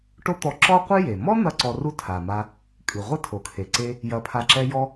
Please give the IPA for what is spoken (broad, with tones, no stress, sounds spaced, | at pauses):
ʈ o˥ t̪ ɔ˧ ǁ ɔ˥ qʷ ɨ˥ j e˩ m ɔ˥ n̪ ɐ˧ ǀ ɔ˧ r u˥ tʰ a˩ m a˧ | kʼ ɨ˩ ʁʷ ɐ˥ tʰ o˩ kʰ e˩ ǀ e˧ | j ɐ˧ pʰ a˧ ǁ ɛ˥ j ɔ˥